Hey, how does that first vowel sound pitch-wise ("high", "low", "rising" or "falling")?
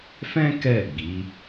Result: high